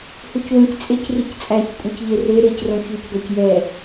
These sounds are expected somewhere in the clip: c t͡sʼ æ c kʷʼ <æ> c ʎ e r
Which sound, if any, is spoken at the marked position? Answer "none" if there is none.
œ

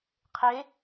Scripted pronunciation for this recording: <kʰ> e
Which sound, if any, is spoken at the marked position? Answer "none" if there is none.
qʰ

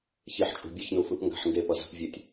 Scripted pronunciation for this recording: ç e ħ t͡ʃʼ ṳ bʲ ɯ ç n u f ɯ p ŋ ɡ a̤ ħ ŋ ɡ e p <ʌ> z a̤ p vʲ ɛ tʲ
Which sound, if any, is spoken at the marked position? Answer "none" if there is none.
ʌ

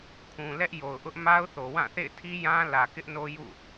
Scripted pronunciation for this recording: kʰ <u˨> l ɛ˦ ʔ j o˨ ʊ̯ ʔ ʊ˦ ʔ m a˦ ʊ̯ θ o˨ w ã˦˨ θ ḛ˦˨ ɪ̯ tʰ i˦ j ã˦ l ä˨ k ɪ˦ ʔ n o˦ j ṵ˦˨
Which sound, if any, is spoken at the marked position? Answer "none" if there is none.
ũ˨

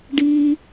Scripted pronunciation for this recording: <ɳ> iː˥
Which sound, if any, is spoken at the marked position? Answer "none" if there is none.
ɖ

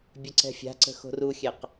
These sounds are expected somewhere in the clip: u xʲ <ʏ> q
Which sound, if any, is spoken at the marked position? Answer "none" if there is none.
ɛ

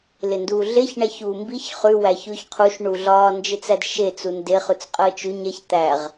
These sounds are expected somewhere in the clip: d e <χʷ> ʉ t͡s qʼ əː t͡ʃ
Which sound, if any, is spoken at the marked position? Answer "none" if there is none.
χ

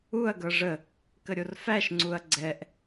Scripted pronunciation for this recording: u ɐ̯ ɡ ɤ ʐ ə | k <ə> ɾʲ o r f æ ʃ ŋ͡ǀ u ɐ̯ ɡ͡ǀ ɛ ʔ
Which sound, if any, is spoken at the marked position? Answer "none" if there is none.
ə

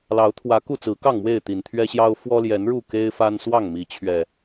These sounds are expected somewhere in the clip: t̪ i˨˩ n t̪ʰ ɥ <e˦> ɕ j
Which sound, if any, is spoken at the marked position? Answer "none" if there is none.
ɛ˦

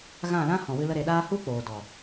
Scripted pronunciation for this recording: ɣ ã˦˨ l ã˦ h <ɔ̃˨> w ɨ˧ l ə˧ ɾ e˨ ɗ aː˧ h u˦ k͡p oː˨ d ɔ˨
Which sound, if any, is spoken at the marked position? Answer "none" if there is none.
ɔ̃˨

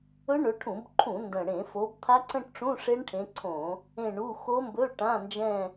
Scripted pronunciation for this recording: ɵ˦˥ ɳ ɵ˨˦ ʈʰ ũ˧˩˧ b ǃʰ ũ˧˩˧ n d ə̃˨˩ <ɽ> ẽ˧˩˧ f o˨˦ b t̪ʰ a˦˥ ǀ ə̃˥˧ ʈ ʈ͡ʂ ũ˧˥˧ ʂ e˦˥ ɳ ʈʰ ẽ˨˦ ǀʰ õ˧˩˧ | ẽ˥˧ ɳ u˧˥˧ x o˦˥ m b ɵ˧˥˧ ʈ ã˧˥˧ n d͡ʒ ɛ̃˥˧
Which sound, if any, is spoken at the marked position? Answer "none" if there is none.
ɽ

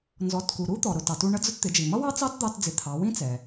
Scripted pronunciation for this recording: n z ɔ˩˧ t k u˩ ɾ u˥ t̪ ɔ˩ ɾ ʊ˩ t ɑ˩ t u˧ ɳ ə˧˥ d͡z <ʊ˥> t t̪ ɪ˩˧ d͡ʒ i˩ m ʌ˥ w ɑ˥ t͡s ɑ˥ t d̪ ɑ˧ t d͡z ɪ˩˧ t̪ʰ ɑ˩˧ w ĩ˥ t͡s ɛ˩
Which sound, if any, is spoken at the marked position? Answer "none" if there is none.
ʊ˧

